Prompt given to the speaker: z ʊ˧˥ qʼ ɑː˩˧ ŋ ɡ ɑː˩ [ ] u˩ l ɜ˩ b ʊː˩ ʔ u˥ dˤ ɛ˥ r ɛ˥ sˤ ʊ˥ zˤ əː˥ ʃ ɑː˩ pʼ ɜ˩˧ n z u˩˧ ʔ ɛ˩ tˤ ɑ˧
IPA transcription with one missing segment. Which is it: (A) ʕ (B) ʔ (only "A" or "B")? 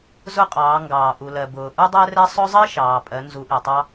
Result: B